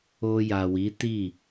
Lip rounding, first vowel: rounded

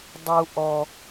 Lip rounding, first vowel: rounded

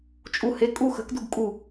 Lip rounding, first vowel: rounded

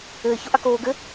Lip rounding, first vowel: unrounded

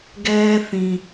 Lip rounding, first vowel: unrounded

